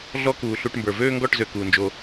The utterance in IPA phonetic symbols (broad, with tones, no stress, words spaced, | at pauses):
ɮɔ˦kuː˨ ɬu˧ʈmbə˞˨ vøː˦ŋɡɔ˦˨ʈzø˨ kuː˨nd͡ʒo˧